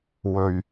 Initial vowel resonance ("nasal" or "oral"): oral